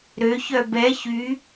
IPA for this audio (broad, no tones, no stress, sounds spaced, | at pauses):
ɾ ø ç œ b ɛ ç y